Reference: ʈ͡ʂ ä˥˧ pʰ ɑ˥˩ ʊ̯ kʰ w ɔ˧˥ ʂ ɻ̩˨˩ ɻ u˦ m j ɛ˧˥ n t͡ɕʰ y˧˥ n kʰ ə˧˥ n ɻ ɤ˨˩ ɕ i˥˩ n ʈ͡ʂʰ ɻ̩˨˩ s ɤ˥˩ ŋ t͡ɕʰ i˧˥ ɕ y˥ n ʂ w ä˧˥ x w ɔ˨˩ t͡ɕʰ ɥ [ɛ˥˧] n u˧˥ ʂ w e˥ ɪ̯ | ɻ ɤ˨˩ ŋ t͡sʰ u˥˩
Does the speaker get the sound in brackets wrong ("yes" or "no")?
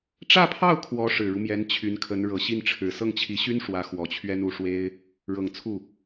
yes